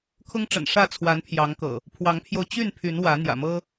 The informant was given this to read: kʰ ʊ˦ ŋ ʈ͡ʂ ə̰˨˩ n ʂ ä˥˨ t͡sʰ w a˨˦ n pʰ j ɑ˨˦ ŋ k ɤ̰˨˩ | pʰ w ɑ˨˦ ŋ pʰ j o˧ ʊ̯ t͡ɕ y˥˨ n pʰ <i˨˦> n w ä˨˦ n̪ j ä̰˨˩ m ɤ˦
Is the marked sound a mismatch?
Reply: yes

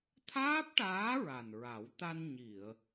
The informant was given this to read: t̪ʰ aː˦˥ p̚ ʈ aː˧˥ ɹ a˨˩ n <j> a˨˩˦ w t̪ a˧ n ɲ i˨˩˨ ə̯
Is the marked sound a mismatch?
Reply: yes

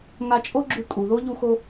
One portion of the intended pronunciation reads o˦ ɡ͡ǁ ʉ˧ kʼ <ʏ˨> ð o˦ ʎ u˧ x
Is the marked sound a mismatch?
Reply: yes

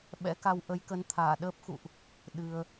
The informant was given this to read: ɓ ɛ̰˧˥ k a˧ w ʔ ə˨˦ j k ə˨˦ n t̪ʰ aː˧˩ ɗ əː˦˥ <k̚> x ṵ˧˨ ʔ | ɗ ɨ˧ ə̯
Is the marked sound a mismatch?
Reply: yes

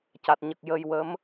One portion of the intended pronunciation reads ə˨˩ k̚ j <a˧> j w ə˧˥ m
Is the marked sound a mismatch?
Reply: yes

